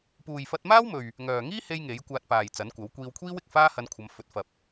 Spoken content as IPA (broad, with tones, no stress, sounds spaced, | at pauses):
p uː˨ j f ɐ˧ t̚ m aː˥ w m ɵ˨ ɥ | ŋ œː˨ ŋ iː˥ h e˧ j ŋ e˨˥ j kʷ aː˧ t̚ p aː˨ j t͡s ɐ˨˥ n kʷ ɐ˨˥ w kʷ iː˧ w kʷʰ iː˥ w ɪ˨ k̚ f aː˥ h ɐ˧ n kʷʰ ɐ˨˧ m f ɵ˨ t̚ f ɐ˨ p̚